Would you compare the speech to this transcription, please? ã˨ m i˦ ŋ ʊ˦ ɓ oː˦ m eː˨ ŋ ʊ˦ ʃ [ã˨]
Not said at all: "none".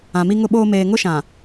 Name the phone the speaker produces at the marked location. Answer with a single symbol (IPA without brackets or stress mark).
ã˨